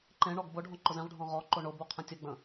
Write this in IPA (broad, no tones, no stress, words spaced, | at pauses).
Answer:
ǃẽ ɳɔɡbʊɖʱɔ̃ ǃʊzẽʁɖʱɔ̃ ʁɔ ǃoɳʊbu qʰə̃tʲəɡ͡bə̃